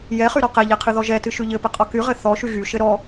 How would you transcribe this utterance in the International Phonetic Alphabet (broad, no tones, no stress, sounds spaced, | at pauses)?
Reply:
j ɛ χ y ɾ ɔ q ɛ ʎ ɛ qʰ ɨ ð ɔ ʒ ɛ t ɨ ʃ y ʎ ɘ p ɘ qʼ ɔ k y ʁ ɘ θ ɔ ʃ y ɣ y ʃ ɘ ɾ ɔ